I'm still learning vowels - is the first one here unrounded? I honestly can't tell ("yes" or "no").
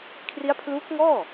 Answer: yes